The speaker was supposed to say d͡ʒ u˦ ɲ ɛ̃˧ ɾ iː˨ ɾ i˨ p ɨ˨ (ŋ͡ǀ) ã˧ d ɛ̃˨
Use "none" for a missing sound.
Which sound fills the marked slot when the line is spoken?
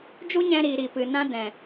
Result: n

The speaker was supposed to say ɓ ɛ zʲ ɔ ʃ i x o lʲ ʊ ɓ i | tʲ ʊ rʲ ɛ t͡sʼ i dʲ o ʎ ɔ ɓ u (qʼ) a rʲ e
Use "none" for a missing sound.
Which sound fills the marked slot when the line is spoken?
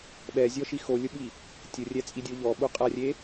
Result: qʼ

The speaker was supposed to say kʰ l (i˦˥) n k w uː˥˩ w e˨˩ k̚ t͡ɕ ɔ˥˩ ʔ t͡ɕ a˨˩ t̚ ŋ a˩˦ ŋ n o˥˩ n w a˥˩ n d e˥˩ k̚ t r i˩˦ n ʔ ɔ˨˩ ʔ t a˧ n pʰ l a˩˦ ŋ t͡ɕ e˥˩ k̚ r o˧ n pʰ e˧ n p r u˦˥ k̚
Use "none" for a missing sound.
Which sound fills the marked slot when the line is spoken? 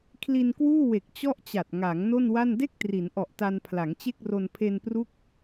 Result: i˧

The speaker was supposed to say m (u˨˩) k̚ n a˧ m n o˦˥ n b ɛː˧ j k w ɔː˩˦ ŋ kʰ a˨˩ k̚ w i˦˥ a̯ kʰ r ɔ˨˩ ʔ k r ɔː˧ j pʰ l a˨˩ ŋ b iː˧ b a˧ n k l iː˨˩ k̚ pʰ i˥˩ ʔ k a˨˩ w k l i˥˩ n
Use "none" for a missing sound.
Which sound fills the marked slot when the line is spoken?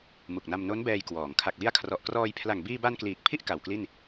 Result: u˨˩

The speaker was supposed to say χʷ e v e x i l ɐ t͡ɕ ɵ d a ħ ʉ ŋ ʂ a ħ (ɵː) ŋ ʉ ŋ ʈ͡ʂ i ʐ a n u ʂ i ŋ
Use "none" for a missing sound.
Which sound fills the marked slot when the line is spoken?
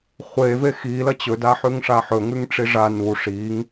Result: ɵ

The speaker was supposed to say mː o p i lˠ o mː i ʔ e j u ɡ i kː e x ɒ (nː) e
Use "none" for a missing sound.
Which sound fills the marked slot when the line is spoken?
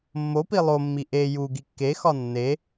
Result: nː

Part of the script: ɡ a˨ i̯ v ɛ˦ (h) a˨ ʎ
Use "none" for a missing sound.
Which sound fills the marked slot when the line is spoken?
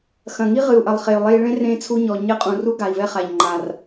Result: χ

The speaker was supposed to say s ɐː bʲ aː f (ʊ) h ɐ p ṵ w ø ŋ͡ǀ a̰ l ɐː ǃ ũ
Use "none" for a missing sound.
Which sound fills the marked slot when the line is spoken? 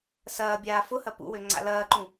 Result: ʊ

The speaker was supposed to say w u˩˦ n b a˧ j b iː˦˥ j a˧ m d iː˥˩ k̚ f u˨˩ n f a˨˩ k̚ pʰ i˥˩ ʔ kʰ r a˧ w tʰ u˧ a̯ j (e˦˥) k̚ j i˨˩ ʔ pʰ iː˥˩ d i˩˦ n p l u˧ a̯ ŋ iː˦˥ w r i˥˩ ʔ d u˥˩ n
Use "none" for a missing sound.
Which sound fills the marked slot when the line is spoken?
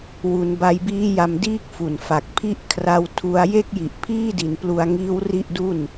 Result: e˥˩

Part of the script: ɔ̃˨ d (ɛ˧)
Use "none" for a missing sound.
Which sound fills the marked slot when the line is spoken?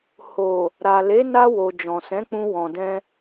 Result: ɛ̃˧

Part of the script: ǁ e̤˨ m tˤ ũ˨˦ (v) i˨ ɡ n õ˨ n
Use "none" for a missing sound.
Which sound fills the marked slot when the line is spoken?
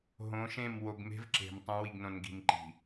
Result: w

